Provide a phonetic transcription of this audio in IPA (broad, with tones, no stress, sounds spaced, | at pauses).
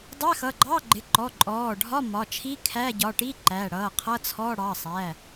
dˤ æ˧˥˧ x ʌ˩˧˩ ɡ͡ǃ ɑ˧˥˧ ɡ͡ǃ ɪ˩˧˩ ǃ ɔ˩˧˩ ǃʼ ɔː˩˧˩ ɖʱ ɒ˧˥˧ m ɒ˩˧˩ t͡ʃʰ i˧˥˧ kʰ æ˧˥˧ ɟ ɒ˩˧˩ ʈ i˧˥˧ ǃ æ˩˧˩ ɽ ʌː˩˧˩ qʰ ʌ˧˥˧ t͡sʰ ɔ˧˥˧ ɽ ɑ˩˧˩ sˤ æ˩˧˩